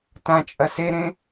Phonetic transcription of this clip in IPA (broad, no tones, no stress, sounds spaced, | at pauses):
t ã t͡ʃʼ ɐ s e ɾ ẽ